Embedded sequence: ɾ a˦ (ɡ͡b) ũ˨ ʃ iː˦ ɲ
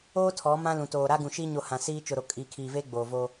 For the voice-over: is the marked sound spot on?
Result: no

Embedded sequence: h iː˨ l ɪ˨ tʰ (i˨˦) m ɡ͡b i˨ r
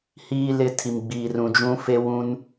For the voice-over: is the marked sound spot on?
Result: no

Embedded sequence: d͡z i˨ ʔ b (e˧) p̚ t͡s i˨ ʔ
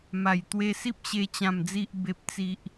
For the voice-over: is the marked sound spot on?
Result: no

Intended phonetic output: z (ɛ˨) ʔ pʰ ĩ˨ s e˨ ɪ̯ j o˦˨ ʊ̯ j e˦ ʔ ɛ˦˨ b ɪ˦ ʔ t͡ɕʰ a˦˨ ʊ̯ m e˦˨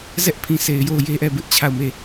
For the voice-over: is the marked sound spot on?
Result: no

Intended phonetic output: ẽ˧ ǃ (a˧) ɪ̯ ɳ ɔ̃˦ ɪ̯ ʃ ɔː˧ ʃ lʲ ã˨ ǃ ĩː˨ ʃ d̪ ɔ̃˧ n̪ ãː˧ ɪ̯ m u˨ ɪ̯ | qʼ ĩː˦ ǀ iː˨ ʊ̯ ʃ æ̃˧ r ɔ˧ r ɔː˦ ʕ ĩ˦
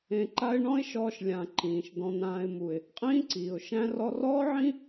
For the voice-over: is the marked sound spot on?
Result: no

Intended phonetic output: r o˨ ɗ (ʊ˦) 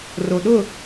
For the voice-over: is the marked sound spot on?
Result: no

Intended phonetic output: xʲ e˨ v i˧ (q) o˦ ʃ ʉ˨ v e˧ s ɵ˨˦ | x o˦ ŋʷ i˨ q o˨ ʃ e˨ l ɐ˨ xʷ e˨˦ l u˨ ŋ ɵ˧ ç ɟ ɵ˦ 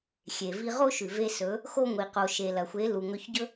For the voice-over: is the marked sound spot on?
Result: no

